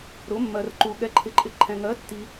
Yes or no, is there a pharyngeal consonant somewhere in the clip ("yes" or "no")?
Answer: no